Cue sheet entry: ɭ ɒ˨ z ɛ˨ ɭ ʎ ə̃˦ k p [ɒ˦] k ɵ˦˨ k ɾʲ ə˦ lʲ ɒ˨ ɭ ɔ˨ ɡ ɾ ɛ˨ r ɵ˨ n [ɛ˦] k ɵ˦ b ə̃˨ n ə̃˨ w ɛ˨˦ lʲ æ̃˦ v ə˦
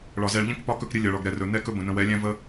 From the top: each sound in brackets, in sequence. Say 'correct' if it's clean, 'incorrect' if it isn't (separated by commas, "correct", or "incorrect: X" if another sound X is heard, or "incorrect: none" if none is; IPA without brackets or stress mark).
correct, correct